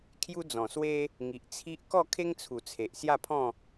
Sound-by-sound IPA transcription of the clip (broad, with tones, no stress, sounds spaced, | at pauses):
kʰ j u˦ d͡z ɔ̃˨˩ s w e˦ | ŋ i˨ ʔ t͡sʰ i˦ ʔ k ɔ˥˧ kʰ e˦ ŋ t͡sʰ u˨˩ t͡sʰ e˨ ʔ s j a˥˧ pʰ ɔ̃˥˧